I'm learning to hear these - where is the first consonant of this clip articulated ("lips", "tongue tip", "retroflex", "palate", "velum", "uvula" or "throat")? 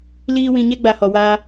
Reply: tongue tip